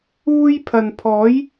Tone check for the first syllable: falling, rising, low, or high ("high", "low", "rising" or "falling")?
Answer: high